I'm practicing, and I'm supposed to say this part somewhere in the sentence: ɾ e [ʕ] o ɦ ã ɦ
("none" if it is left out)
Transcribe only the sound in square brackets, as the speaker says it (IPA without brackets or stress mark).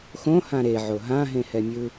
ʕ